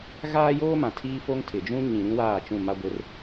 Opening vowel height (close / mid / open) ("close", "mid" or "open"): open